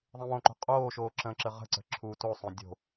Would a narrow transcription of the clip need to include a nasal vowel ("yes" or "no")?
yes